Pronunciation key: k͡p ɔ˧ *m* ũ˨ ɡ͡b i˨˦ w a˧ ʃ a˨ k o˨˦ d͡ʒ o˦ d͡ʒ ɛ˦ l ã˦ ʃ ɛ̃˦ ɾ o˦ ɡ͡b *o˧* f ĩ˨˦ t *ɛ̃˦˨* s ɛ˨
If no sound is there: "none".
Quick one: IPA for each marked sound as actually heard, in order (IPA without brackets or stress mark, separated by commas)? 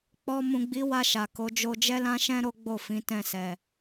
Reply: m, o˦˨, ɛ̃˦˨